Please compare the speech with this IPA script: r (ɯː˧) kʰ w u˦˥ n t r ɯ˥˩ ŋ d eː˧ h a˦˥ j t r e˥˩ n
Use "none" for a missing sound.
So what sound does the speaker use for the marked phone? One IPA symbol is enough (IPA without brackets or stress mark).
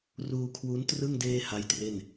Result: uː˧